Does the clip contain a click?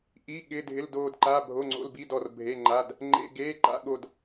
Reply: yes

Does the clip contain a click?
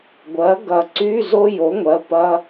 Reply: yes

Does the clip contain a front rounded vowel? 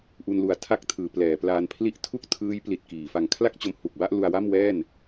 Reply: no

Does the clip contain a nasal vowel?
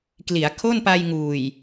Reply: no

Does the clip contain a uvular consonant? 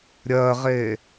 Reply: yes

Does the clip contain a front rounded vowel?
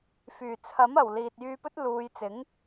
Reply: yes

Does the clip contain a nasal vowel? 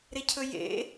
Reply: no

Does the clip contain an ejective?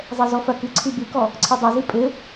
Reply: yes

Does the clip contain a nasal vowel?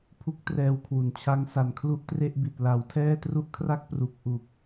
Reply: no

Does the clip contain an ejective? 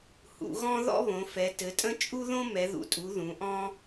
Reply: yes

